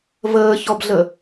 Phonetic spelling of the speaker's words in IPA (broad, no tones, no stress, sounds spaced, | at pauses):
v əː ç ɔ b ɮ ə